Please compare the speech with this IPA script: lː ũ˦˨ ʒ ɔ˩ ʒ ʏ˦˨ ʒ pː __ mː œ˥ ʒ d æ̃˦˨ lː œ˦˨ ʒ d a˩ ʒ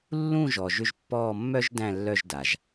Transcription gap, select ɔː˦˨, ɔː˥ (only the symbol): ɔː˦˨